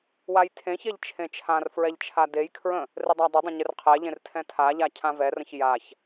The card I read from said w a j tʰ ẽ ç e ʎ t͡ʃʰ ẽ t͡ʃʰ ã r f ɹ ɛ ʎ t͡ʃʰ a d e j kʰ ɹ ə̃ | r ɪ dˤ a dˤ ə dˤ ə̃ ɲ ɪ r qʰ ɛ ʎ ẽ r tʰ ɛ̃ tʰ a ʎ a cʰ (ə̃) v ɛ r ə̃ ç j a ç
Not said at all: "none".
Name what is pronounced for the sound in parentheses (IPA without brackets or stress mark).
ã